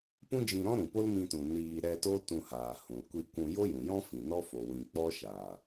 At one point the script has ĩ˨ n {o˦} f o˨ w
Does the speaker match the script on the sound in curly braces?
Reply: no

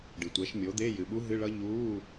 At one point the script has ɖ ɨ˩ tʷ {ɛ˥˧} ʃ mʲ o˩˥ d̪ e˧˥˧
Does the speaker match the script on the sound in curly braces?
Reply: no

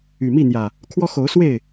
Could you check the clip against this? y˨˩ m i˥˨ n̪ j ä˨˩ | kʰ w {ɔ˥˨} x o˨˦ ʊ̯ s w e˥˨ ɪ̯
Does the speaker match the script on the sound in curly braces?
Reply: no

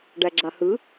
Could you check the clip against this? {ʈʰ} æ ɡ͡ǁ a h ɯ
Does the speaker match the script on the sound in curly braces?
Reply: no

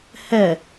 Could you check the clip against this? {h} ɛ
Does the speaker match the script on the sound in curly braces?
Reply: yes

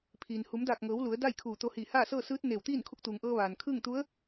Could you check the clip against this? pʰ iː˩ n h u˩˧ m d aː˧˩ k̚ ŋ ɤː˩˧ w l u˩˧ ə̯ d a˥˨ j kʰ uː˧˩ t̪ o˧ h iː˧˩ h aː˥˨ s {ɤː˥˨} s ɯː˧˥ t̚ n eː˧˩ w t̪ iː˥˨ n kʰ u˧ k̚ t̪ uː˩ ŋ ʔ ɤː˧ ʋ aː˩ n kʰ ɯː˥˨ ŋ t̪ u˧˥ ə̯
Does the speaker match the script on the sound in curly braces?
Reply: yes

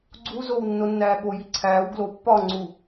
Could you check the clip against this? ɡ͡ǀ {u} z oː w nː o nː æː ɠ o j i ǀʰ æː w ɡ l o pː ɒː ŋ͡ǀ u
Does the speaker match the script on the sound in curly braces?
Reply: yes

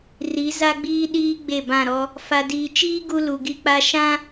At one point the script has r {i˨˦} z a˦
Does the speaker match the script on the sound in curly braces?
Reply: yes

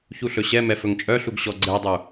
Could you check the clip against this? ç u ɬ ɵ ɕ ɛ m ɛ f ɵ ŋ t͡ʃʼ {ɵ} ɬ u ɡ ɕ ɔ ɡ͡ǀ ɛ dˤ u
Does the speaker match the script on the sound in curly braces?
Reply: no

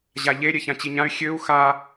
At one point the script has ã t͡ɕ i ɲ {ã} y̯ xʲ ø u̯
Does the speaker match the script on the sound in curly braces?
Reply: yes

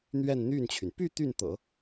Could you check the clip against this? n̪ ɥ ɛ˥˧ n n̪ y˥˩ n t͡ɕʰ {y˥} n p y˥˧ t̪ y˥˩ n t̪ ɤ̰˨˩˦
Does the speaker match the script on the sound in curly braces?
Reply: no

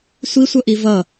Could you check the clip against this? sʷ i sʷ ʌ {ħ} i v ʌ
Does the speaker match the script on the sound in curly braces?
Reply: no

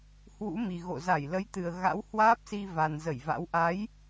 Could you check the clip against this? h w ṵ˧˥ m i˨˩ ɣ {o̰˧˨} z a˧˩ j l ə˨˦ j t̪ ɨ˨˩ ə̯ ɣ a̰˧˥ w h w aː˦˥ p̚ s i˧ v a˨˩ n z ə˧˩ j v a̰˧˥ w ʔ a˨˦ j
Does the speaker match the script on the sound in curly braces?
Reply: yes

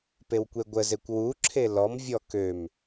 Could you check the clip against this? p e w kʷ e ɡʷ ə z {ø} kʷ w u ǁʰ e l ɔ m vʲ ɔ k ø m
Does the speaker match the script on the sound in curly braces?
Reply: no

